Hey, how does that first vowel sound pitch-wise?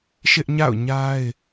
high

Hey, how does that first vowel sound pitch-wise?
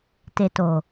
low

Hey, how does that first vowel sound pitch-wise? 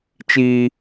high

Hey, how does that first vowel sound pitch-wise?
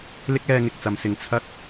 high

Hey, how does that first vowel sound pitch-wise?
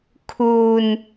low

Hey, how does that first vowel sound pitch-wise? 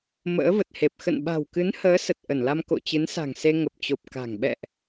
rising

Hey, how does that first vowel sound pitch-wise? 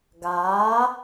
rising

